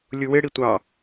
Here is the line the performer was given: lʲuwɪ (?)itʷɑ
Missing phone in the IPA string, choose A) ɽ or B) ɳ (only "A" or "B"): A